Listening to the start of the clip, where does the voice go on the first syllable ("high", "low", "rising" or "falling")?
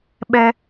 high